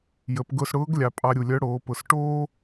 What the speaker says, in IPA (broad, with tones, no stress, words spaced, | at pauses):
jə˩˧pɡʊ˧sɽʊː˧˥ɡ lʲɑ˩˧pʼɑ˧ ɾʲu˩lʲœ˧˥ɽoː˩˧pʊ˩˧s ʈoː˥